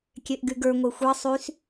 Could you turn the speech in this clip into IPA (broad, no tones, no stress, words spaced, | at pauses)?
kʲeʔɡyɡə˞ ŋʷexʷe sˤys